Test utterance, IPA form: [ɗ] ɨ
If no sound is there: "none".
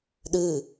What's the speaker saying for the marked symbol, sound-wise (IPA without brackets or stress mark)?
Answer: ɗ